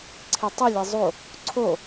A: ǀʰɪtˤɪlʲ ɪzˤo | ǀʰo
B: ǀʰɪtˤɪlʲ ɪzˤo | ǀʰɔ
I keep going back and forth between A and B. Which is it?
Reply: A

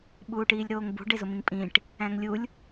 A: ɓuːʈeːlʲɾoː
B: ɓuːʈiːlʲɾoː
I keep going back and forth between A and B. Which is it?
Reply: B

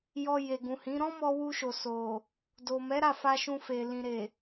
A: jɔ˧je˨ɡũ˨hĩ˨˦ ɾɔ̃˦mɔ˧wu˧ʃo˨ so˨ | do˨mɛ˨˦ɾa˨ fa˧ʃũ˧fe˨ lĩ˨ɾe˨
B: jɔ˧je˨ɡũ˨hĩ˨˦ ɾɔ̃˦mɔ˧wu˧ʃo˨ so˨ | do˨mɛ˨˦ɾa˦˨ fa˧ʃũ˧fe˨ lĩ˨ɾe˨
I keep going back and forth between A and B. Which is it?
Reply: B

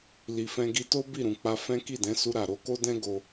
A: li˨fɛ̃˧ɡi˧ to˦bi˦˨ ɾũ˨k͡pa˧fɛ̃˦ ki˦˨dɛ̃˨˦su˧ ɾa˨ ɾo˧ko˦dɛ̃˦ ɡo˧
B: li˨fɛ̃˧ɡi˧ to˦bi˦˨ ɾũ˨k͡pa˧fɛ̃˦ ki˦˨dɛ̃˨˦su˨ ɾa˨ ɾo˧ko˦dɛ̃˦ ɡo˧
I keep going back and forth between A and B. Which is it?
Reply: A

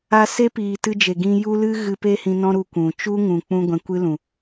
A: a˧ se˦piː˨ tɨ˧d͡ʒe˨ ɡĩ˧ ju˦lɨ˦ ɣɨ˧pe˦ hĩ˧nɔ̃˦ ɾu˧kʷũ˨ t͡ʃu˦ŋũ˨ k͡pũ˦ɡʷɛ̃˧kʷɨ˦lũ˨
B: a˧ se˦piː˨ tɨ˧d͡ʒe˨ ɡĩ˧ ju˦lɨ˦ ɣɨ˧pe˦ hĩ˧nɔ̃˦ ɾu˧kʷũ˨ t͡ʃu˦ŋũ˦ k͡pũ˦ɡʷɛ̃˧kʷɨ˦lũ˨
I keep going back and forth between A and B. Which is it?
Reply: A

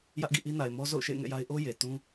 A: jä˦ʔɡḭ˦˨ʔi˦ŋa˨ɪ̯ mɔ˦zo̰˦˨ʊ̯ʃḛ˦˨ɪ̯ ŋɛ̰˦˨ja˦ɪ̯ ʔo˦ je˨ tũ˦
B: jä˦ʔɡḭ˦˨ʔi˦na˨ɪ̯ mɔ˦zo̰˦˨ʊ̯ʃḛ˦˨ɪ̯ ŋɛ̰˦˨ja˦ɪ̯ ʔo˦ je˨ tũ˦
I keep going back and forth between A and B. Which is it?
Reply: B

